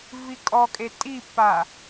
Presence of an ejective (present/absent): present